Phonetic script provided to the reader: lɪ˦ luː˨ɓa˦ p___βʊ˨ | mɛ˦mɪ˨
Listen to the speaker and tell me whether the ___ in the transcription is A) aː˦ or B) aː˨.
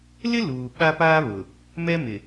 A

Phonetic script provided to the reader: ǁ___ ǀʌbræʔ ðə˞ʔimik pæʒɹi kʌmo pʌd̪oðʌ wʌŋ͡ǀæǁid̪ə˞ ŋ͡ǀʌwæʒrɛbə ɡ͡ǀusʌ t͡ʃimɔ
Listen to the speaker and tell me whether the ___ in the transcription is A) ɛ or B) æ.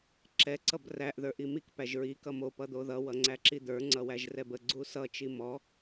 A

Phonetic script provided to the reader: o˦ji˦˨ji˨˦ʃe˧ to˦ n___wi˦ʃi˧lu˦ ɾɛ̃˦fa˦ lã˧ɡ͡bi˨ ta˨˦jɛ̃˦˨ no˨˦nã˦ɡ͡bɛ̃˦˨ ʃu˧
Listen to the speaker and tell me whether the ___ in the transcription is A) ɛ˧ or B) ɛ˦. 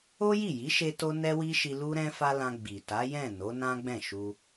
B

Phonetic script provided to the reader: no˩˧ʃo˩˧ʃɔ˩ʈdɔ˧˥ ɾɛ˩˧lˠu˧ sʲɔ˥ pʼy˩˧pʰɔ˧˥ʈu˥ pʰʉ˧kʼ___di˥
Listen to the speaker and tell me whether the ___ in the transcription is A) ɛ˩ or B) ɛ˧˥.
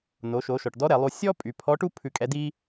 B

